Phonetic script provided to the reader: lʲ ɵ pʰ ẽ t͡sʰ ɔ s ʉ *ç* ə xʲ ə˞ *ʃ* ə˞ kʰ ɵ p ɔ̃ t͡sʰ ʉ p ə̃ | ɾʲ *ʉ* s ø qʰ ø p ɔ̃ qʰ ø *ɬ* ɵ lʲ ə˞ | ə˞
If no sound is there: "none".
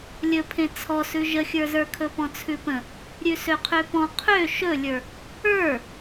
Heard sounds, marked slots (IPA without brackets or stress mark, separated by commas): ʒ, z, ʉ, ʃ